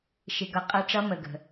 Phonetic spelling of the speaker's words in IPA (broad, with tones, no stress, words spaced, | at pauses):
ʃɪ˨ɡʌ˨ qʼʌ˧˥ʈ͡ʂʌ˧˥ mə˨ɡə̤˨